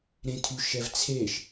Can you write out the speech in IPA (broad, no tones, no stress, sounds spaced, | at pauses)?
ɾ ẽ tʰ y ʃ ɛ v t͡sʰ e ʃ